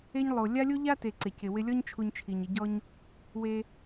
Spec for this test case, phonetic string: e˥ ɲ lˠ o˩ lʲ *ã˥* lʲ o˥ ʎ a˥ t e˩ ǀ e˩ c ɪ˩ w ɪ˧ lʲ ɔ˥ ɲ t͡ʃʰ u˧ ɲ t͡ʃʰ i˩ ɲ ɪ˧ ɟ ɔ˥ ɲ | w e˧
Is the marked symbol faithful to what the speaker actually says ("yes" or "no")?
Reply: no